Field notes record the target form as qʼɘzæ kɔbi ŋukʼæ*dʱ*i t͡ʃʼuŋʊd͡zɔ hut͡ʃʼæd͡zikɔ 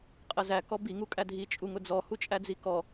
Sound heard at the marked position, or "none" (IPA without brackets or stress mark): dʱ